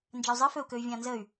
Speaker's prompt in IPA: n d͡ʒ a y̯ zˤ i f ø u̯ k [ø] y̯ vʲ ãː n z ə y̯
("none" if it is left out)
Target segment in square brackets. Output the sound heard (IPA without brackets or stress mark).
ø